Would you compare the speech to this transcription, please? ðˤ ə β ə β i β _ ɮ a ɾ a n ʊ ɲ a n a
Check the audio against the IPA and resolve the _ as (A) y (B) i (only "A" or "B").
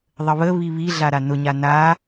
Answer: B